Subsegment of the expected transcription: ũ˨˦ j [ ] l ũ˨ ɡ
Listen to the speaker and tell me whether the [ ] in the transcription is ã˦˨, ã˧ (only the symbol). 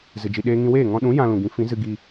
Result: ã˧